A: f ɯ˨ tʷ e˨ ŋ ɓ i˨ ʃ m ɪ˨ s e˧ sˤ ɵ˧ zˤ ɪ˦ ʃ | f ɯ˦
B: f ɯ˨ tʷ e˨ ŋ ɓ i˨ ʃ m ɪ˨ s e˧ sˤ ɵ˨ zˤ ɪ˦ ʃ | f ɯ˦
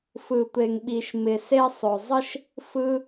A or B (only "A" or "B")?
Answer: B